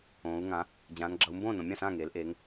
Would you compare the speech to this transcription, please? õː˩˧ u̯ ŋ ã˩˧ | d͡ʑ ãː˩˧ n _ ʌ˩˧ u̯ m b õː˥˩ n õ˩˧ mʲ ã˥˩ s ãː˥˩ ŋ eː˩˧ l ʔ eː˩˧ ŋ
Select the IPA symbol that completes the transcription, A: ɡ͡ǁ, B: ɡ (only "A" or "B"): A